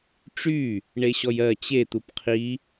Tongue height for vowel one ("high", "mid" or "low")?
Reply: high